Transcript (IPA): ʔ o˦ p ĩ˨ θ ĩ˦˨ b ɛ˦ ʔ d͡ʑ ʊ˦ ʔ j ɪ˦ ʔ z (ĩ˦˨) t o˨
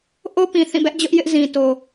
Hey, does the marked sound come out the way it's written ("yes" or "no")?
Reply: no